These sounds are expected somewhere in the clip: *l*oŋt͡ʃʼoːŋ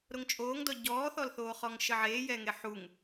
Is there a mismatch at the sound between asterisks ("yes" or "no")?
yes